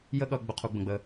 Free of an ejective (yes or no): yes